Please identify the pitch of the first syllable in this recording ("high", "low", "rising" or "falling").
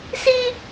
high